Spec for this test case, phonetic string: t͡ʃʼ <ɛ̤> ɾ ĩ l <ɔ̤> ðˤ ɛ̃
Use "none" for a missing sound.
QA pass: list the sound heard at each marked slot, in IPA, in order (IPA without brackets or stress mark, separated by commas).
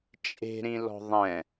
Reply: e̤, ɔ̤